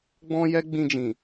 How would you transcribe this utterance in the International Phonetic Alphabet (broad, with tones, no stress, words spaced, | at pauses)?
ɡ͡bɔ̃˦jɛ˦ɡ͡bĩ˧d͡ʒĩ˨